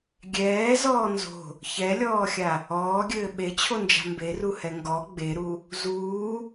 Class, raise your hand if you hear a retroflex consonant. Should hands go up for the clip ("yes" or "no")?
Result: no